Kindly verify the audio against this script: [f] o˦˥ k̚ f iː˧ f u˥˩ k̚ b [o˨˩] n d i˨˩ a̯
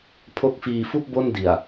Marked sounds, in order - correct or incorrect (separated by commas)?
incorrect, incorrect